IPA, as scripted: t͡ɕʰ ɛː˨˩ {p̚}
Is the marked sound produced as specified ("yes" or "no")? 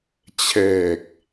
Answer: no